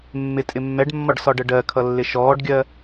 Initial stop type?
ejective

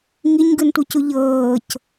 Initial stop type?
plain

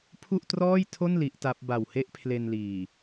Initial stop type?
aspirated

